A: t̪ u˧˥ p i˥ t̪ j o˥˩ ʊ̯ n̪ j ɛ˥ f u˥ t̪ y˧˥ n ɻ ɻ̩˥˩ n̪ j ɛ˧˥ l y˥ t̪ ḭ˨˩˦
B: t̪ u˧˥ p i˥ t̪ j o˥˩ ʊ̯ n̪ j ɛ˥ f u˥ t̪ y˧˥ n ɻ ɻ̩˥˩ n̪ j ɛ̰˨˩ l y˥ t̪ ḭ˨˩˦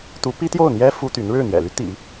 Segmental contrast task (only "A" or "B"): B